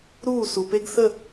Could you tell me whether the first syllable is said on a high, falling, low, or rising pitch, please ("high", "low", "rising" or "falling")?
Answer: falling